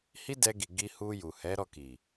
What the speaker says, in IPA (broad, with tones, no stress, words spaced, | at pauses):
hi˦dɛ˧ɡi˨ ɡi˧hu˧ ju˨hɛ˨˦ɾɔ˦˨ki˨